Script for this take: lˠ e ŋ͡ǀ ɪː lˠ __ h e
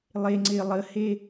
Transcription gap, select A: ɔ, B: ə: B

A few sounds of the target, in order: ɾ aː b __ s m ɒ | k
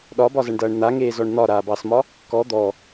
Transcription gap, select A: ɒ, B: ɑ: B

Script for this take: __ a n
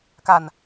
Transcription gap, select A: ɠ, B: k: B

